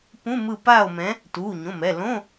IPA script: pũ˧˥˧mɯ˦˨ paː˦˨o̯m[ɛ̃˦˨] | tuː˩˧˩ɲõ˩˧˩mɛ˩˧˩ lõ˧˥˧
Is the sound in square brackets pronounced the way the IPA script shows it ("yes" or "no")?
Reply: no